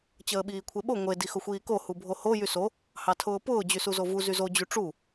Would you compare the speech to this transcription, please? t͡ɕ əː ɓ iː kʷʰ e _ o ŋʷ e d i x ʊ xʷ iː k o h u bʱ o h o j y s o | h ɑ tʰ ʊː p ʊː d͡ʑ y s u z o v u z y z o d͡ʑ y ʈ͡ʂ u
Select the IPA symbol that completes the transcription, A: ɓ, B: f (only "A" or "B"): A